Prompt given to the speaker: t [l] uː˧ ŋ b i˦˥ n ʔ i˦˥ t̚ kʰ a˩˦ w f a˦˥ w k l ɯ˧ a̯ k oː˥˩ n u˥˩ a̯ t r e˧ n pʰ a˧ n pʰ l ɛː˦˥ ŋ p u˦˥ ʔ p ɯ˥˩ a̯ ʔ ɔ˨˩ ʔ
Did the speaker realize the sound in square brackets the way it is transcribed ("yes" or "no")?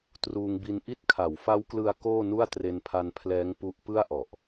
no